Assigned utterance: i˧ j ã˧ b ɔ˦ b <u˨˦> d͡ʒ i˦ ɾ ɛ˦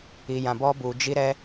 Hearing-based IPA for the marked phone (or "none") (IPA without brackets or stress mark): u˧